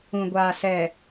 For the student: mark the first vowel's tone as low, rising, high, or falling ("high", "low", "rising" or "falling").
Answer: low